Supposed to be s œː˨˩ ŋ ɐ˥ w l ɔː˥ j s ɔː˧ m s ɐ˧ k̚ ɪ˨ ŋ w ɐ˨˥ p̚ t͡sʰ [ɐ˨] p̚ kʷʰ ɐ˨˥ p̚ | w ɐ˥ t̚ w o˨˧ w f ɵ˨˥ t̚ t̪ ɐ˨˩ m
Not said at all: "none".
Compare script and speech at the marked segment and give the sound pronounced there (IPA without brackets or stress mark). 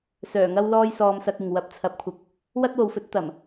ɐ˨˥